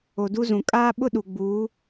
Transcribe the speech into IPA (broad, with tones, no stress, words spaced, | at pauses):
o˨du˦zũ˨ kʼaː˦ɓʊ˦ ɗu˨ɡ͡buː˨˦